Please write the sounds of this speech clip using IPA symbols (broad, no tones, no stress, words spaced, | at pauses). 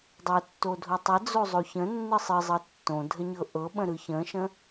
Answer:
dˤotːo dʱotˤəd͡zo zˤoçə̃nːɯ sˤɨ zˤɤtːõdʱə ɲɤʔɤɓə̃ ɾɯçə̃ʃə̃